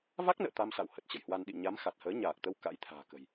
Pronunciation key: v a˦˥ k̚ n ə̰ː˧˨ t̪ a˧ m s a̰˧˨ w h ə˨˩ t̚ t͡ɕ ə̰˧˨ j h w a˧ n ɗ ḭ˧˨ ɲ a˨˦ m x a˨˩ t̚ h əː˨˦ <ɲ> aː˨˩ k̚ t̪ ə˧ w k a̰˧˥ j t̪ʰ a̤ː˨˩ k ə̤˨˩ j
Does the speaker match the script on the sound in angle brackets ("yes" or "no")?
yes